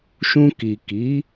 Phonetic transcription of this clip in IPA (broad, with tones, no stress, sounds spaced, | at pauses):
ʃ ũ˧ k i˨ k i˨˦